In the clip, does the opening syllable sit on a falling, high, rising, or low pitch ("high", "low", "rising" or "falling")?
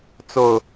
low